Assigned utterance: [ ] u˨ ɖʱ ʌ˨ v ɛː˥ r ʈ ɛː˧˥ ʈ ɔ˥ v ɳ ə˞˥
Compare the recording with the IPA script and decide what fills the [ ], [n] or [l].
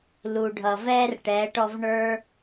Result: l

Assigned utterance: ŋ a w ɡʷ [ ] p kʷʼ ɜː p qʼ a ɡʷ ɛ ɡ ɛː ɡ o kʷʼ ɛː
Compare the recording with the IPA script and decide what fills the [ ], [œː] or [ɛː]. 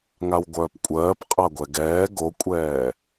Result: œː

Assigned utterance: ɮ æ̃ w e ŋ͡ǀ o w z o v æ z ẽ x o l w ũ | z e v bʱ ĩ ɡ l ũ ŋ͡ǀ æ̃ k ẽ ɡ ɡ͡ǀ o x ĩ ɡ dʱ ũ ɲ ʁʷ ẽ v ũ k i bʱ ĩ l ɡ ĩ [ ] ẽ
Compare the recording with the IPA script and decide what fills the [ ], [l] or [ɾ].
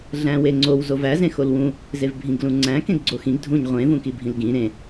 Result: ɾ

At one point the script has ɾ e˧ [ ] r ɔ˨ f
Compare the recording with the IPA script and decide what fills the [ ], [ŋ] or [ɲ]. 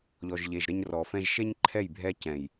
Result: ɲ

